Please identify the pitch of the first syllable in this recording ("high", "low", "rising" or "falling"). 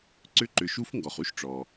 rising